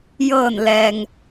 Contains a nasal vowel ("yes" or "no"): no